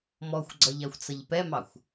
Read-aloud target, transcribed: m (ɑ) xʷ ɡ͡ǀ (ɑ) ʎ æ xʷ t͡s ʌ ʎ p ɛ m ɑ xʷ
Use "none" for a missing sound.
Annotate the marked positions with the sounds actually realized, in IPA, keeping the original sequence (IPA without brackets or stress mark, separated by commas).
ɔ, ʌ